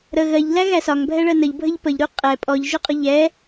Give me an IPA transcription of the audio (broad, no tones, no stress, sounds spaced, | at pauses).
ɾ ə ɣ ɜ ʎ l æ ɣ æ s ɒ ŋ bʱ ɛ ɭ ɜ n ə ʎ bʱ ə ʎ p ə ʎ ɾ u qʼ ɛ pʼ ɔ ʎ ʒ ʊ qʼ ʊ ʎ ɛ